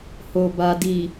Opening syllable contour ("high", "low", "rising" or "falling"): low